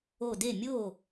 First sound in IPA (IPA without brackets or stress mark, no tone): o